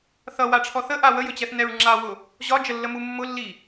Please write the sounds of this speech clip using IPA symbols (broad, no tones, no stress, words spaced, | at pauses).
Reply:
θʌwaʈ͡ʂʰɔ θəʔa wəjɵt͡ɕɛθ nɛɹŋ͡ǁawʊ | ʑɒd͡ʒəlːəmu mːʊlːi